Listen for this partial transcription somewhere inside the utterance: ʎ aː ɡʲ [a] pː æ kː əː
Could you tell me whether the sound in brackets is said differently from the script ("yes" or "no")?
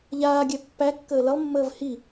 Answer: yes